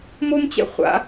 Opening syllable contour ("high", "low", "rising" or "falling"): high